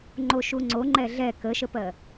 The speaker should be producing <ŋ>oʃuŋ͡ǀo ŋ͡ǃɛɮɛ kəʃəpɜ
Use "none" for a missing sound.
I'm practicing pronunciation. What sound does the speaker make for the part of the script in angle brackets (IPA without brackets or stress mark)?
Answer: ŋ͡ǃ